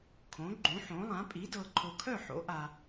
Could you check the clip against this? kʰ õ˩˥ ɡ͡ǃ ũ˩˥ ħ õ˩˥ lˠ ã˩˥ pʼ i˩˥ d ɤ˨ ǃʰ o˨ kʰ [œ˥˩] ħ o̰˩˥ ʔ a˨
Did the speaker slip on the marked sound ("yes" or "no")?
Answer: no